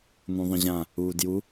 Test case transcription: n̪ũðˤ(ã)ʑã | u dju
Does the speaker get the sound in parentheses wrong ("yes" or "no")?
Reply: yes